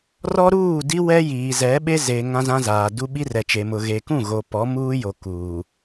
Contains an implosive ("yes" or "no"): yes